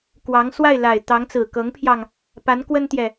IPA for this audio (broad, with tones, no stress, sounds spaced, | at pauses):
k w ɑ˧˥ ŋ s w a˥˩ ɪ̯ l a˨˩ ɪ̯ t̪ ɑ˧˥ ŋ t͡s ɹ̩˨˩ k ɤ˧˥ ŋ pʰ j ɑ˧ ŋ | p a˧˥ n k w ə˥ n t̪ j ɛ˨